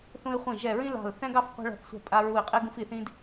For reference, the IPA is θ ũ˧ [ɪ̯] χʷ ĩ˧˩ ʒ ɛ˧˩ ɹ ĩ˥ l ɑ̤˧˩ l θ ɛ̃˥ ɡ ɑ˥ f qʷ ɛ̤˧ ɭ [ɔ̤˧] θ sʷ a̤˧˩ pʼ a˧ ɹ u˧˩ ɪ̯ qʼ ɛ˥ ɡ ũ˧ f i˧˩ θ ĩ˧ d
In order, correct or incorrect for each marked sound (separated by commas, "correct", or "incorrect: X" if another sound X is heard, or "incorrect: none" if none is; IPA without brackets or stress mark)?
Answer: correct, incorrect: ɔ̤˧˩